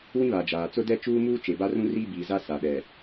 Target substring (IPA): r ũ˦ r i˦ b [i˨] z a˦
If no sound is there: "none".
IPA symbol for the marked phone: iː˨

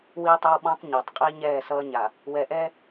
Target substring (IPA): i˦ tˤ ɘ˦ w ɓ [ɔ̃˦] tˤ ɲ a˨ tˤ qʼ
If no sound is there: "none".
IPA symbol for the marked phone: ɔ̃˦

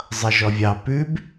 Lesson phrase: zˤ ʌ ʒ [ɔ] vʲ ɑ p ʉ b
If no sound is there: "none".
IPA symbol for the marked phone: ɔ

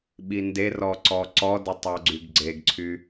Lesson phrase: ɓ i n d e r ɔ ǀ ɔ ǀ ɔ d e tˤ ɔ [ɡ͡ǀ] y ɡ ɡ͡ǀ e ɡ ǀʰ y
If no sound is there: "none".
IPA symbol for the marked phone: ɡ͡ǀ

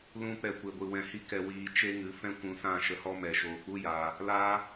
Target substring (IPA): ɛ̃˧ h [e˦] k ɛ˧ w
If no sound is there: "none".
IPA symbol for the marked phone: i˦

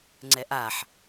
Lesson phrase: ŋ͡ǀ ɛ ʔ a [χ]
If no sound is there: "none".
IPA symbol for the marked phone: ħ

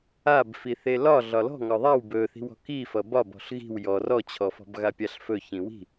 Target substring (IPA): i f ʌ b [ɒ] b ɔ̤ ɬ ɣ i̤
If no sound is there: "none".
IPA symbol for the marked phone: ɒ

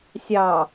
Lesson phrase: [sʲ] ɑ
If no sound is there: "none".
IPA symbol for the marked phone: sʲ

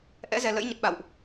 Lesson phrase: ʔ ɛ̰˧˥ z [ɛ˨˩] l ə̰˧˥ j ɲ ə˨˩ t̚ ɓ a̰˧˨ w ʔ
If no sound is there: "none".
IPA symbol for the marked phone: ɛ˨˩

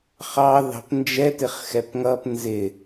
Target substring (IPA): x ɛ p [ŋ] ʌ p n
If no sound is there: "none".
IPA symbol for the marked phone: ŋ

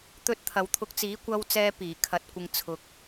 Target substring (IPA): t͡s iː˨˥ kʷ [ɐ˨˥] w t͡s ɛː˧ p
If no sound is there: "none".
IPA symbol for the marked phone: ɐ˧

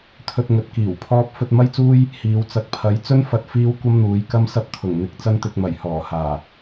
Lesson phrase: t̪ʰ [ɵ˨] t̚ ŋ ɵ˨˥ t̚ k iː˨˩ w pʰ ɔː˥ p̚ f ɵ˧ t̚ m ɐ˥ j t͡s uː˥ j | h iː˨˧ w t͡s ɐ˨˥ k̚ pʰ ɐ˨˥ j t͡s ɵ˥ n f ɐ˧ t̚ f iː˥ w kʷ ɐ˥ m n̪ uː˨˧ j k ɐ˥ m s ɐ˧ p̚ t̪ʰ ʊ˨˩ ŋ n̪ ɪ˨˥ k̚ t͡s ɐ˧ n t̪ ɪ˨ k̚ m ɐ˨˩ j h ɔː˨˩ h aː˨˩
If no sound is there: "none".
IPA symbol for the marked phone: ɵ˧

